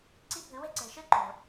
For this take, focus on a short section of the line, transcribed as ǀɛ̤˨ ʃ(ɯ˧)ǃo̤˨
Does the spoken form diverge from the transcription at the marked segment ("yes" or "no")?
yes